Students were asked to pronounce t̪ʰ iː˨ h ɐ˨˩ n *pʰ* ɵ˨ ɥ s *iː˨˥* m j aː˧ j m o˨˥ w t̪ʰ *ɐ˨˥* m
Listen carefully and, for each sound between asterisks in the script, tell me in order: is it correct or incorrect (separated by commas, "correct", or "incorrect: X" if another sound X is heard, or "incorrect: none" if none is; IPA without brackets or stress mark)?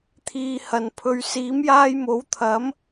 correct, correct, correct